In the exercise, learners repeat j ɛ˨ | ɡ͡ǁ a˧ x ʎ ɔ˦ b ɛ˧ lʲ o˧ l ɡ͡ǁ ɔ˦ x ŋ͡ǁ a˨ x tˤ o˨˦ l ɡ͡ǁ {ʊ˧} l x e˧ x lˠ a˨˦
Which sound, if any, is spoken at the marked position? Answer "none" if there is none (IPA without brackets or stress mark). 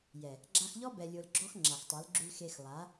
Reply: ʉ˧